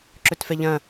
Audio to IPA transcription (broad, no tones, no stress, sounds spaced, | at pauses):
ǁ ɵ t f ɛ ʎ ɐ̃